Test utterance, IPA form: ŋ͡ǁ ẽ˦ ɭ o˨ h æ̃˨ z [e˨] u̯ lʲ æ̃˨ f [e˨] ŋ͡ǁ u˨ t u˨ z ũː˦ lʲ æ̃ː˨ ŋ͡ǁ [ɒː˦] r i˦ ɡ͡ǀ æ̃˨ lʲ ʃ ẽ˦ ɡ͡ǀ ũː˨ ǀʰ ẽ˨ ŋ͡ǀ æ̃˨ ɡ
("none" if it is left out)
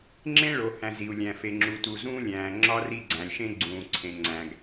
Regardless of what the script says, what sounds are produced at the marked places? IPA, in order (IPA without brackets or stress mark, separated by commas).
i˨, e˨, ɒ˦